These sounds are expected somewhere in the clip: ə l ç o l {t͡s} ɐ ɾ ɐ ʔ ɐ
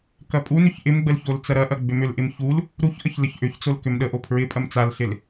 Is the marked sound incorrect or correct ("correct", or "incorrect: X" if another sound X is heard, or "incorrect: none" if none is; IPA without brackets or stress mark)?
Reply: correct